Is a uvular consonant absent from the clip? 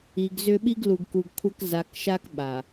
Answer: yes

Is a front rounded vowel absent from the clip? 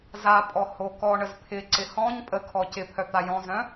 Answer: no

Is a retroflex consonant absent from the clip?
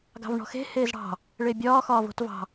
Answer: no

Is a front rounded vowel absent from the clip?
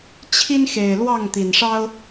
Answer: yes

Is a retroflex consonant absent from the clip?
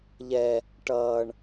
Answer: no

